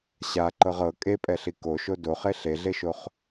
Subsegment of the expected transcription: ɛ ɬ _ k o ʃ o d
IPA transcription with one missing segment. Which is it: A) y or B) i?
B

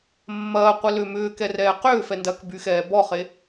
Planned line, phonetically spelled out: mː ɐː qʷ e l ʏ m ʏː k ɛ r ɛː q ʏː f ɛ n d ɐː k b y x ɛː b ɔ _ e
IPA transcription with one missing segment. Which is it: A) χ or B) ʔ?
A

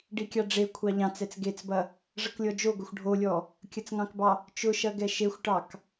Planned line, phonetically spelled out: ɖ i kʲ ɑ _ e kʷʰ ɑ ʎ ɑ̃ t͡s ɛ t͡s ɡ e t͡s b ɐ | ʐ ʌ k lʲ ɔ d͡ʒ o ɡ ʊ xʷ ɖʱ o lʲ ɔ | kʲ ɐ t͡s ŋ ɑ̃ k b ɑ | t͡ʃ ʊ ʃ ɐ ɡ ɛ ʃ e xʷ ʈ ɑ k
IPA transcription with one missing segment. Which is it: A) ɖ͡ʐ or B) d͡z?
A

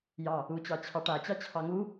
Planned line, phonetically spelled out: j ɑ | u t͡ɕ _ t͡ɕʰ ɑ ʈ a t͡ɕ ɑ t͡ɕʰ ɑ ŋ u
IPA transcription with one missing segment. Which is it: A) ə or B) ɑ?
B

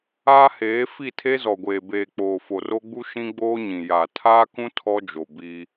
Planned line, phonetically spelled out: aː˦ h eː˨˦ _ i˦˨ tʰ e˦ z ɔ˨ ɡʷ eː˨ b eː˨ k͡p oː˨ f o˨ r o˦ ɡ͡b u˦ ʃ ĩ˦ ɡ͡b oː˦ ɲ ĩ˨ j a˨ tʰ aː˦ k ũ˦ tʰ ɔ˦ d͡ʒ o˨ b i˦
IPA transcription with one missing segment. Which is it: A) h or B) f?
B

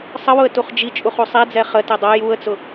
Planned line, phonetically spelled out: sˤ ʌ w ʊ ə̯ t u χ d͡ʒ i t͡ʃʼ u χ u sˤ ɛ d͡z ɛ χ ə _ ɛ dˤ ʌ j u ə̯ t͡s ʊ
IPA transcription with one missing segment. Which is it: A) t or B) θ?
A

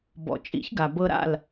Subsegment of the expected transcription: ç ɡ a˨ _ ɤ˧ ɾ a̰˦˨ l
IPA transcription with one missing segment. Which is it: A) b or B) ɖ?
A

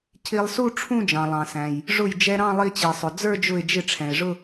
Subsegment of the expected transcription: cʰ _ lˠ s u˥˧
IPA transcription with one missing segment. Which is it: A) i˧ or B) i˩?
A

